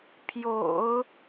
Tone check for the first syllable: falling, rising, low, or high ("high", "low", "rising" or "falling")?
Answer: low